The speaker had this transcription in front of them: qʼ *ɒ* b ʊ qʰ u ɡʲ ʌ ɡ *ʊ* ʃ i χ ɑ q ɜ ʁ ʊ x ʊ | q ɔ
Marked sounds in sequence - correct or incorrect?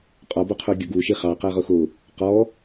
correct, incorrect

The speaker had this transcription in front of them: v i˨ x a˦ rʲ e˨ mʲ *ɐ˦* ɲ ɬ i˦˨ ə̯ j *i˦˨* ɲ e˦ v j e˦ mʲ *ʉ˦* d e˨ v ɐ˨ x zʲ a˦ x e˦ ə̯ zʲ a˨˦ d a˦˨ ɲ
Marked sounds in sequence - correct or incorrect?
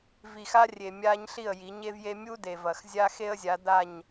incorrect, incorrect, incorrect

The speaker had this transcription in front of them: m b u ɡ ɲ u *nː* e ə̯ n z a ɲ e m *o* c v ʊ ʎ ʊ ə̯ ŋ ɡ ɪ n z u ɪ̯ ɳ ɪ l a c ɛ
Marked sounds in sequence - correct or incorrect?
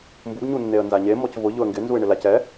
correct, incorrect

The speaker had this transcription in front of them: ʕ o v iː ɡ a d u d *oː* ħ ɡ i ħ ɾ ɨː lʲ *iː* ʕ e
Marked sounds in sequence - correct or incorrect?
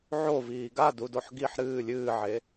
incorrect, incorrect

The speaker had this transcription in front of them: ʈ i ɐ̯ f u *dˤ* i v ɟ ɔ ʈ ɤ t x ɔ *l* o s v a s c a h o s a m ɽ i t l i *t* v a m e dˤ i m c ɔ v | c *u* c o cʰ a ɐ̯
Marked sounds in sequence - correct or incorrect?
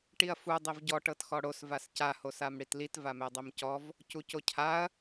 correct, incorrect, correct, correct

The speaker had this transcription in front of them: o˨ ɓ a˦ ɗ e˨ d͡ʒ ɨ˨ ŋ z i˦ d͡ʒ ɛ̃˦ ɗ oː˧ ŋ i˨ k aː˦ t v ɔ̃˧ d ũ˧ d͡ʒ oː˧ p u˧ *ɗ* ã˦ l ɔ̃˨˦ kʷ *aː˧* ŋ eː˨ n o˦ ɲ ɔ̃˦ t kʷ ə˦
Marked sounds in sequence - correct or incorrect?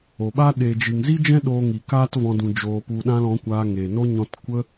correct, correct

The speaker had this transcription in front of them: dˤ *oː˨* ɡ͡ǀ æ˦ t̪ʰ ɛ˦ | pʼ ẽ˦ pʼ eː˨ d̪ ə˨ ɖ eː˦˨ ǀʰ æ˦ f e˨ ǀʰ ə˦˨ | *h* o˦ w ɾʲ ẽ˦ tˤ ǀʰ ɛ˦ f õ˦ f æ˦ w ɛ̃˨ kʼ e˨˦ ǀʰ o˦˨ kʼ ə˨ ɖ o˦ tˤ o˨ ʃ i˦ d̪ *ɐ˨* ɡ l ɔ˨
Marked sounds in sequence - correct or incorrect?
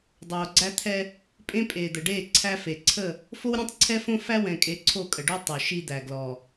correct, incorrect, incorrect

